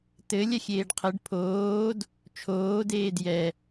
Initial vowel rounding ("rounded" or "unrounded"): unrounded